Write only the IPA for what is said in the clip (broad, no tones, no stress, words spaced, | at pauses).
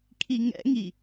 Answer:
kʰiŋɛ̰ŋi